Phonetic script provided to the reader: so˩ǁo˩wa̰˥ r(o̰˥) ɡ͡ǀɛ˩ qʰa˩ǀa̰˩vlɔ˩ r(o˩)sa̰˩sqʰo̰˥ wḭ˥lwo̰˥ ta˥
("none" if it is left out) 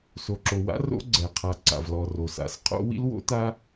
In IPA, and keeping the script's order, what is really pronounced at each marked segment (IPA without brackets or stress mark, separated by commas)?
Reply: o̰˥, o˩